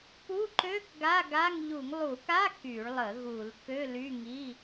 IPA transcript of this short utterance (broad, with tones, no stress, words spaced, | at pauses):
pu˧˥˧ǃø˧˥˧k ɡa˧˥˧ɡa˧˥˧ŋ ʎu˧˩˧ŋlˠu˧˩˧ka˧˥˧ ky˧˩˧ɭlˠə˧˩˧ ɣu˧˩˧lkø˧˥˧ly˧˥˧ ŋi˧˥˧